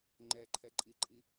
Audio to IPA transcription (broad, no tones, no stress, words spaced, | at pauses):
ŋ͡ǃɛǃʰɛǃʼiǃʼi